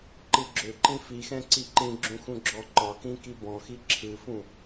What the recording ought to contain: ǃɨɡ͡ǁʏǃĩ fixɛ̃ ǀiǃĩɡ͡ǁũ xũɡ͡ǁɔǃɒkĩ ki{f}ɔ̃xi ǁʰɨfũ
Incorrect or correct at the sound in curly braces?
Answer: incorrect: b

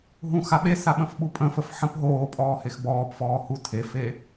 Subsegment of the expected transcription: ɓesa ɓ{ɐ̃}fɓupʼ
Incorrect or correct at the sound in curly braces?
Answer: incorrect: ə̃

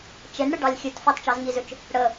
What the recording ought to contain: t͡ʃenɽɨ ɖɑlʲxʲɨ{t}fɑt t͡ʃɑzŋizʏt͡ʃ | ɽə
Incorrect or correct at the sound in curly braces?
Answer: correct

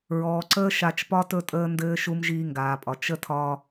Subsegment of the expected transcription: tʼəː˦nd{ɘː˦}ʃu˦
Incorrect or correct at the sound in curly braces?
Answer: correct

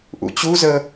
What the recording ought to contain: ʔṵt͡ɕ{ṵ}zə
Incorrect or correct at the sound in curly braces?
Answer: incorrect: u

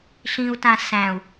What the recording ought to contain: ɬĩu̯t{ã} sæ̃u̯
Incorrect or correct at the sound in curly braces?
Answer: correct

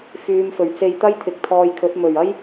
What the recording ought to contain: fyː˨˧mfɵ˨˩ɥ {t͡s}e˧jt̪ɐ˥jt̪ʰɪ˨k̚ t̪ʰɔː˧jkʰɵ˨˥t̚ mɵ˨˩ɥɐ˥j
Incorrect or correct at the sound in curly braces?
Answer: correct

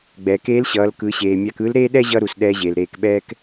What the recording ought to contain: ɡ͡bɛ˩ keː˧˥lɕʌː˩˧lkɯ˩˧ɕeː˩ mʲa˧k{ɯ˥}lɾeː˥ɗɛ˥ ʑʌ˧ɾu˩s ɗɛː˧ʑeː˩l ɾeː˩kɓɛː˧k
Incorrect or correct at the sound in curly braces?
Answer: incorrect: ɯ˧˥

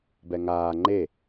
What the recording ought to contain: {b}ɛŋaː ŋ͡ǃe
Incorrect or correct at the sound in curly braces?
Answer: correct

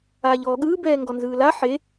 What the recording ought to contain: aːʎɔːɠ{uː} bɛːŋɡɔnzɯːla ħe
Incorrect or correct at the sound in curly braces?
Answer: incorrect: ɯː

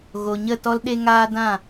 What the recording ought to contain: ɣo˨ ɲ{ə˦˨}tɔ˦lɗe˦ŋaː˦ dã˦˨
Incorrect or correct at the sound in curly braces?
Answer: correct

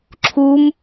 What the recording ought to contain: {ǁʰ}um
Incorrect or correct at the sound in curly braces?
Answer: correct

